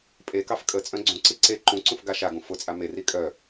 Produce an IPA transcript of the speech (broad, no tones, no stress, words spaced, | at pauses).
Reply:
pʼekɑf kʼə t͡sʼœ̃ɡ͡ǀũǀi ǀe ǃũǀũf ɡaʃaɡũ fʊt͡sʼa meri kʼœ